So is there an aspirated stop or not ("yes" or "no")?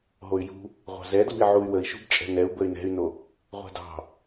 no